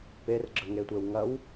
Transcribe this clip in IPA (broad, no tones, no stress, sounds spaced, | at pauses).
p e r ɡ͡ǁ ə ŋ e tʷ e w ŋ ɐ w